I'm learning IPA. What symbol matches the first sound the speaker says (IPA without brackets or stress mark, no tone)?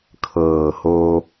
kʰ